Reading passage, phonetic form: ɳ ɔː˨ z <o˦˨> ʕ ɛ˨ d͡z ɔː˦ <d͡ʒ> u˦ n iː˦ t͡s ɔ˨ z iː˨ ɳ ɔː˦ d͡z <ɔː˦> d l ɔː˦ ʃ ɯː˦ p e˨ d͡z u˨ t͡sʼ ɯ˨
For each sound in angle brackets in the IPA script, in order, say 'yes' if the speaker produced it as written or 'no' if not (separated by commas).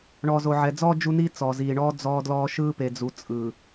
no, yes, yes